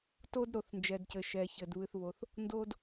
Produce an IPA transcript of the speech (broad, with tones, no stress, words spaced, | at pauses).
to˧dɾo˩θnd͡ʒɛ˩dcɘ˩ ʃɛ˩çɘ˩d βɨ˩θβo˩θ | ndo˧d